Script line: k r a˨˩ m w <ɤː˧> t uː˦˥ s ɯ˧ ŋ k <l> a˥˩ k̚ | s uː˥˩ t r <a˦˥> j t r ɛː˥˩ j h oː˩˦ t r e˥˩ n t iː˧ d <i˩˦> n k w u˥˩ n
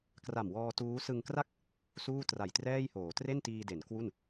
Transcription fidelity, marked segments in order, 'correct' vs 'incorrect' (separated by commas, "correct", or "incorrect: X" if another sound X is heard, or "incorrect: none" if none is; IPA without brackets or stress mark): incorrect: ɔː˧, incorrect: r, incorrect: a˨˩, incorrect: e˩˦